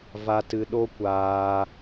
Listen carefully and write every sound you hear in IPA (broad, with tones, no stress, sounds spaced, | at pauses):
v a˧ t ɨ˧ ɗ o˦ kʷ aː˧